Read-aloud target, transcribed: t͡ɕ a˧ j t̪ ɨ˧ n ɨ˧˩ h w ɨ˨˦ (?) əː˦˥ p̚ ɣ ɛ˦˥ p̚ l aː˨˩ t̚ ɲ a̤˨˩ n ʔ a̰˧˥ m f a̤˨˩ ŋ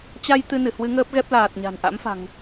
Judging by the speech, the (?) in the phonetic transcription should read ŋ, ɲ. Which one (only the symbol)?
ŋ